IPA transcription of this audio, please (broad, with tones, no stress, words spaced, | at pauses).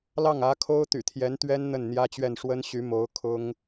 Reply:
lɑ˥˩ŋä˧˥kʰo˥ʊ̯ t̪y̰˨˩t̪ʰjɛ˧˥nt̪ɥɛ˥n n̪ə˥˩nn̪jä˥t͡ɕɥɛ˥˩n ʂwə˥nɕy˧˥mo˧˥ʊ̯ kʰʊ˥ŋ